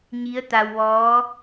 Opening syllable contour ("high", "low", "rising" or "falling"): rising